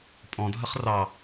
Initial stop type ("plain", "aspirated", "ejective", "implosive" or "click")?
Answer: ejective